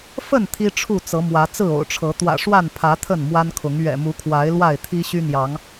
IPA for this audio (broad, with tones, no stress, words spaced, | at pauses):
fə˥˨n t̪ʰi˦ʈ͡ʂʰu˥˨ t͡sɤ˨˦mwä˨˦ t͡sɹ̩˥˨o̰˨˩ʊ̯ʈ͡ʂʰɤ˨˦ t̪wä̰˨˩ʂwa˥˨npʰä˨˦ t̪ʰə˥˨nmwa˦nkʰʊ˨˦ŋ ɥɛ̰˨˩mu˨˦kʰwa˨˦ɪ̯ lwa˥˨ɪ̯t̪ʰi˦ɕy˦n̪jɑ˨˦ŋ